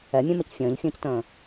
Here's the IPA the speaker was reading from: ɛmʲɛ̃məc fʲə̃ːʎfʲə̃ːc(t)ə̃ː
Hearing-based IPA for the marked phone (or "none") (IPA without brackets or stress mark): t